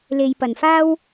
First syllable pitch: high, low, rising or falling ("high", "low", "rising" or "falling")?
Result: low